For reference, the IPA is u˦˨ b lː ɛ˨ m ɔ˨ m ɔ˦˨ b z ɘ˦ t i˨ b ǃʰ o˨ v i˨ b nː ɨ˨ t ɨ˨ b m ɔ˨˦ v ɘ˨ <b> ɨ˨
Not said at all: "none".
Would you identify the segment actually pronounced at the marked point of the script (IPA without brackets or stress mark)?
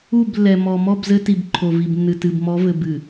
b